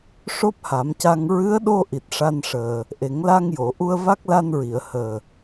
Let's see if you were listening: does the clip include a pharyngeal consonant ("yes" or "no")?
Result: no